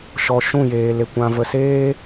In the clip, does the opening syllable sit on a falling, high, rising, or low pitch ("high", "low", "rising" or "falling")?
low